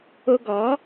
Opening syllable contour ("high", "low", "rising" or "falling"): high